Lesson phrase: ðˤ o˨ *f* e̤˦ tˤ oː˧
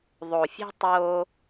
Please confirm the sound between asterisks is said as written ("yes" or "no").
no